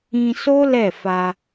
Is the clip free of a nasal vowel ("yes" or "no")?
no